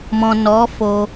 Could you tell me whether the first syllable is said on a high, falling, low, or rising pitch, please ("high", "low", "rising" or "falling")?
low